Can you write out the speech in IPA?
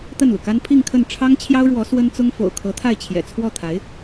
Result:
t̪ ə˥˩ n l u˩ k a˥ n pʰ i˥˧ ŋ kʰ ə˥˩ n ʈ͡ʂʰ ɑ˥ ŋ t͡ɕʰ j ɑ˥ ʊ̯ ɻ w ɔ˧˥ s w ə˥ n t͡s ʊ˥ ŋ f o̰˨˩ ʊ̯ kʰ ɤ˧˥ t̪ʰ a˥˩ ɪ̯ t͡ɕʰ j ɛ̰˨˩ t͡sʰ w ɔ˥˩ t̪ʰ a˧˥ ɪ̯

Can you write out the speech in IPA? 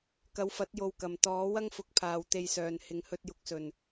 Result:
k ɐ˨˧ w f ɐ˨˥ t̚ j o˧ w k ɐ˨ m t̪ ɔː˨˥ w ɐ˥ ŋ f ʊ˨˥ k̚ pʰ aː˨ w t̪ e˧ j s œː˨ n h ɪ˨ ŋ h ɵ˧ t̚ j ʊ˧ k̚ s ɵ˨˩ n

